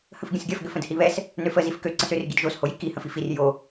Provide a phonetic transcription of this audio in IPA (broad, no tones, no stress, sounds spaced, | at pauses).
h ə̃ f ɡʲ ə̃ s ɡʲ ɐ f ɡ ʏ f ə̃ d h i β ɛ s | n ø f ə z i f k ø ǀ ə̃ s ʏ r ɡ i d ʒ o s h o j i k i h ə̃ f i f i r j o